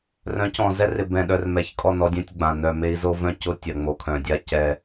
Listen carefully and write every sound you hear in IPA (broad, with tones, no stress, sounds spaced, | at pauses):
r œ̃˨˦ c ɔ̃˨ z ɛ˦ r ɪ˨ b ɛ̃˨ ɗ œ˨ r m ɛ˨ ç kʼ ɔ˦˨ n ɔ˦ dʲ ɛ̃˦ tʲ ɡ͡b ã˨ n œ˨ m e˦ i̯ z o˦ v œ̃˦˨ c ʊ˦ tʲ ɐ˨ ŋ͡m o˨ kʰ œ̃˨ dʲ a˦ c ɛ˦